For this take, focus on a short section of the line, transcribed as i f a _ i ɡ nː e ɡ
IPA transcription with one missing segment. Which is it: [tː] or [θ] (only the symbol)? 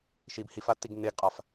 tː